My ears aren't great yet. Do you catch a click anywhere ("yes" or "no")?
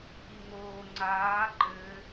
yes